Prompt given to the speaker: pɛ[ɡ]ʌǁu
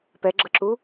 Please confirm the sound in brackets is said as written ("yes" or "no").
no